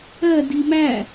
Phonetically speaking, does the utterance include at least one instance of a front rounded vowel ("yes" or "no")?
no